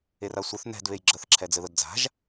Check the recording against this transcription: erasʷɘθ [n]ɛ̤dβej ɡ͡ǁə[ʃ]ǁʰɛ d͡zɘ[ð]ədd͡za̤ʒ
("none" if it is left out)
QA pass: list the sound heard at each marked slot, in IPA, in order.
n, θ, ð

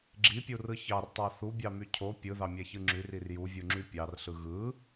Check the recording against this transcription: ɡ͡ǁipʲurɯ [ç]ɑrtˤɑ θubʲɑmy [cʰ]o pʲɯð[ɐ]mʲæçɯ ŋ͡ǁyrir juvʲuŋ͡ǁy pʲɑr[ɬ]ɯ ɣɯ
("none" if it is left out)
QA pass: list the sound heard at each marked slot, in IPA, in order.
ç, cʰ, ɑ, ɬ

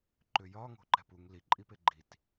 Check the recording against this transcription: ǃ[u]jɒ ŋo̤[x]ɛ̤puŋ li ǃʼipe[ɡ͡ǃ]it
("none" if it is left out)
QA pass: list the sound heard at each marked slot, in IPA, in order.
ʏ, ǃ, ɡ͡ǃ

